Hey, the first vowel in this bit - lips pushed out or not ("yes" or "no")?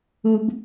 yes